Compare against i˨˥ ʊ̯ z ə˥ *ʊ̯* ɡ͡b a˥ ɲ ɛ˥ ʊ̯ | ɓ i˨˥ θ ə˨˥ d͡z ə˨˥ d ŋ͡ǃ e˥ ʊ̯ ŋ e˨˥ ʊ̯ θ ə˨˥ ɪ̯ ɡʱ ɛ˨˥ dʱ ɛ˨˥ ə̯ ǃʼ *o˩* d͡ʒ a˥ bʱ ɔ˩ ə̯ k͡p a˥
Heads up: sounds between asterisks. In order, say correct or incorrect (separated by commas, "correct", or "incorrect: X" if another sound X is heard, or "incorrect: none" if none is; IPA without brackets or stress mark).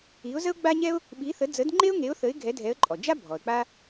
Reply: correct, incorrect: ɔ˩